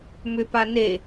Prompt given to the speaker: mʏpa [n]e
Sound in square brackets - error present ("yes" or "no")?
no